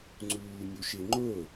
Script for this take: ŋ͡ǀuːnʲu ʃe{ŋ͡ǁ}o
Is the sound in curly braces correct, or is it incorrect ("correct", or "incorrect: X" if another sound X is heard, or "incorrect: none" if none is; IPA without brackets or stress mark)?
incorrect: ŋ͡ǃ